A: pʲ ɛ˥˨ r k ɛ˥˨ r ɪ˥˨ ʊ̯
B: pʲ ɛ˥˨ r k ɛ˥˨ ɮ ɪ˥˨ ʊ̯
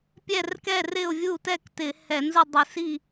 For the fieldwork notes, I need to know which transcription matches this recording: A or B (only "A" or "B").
A